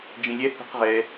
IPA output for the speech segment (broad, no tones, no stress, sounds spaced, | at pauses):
d͡ʒ ĩ lʲ ɛ h ṳ q ʁ ɛ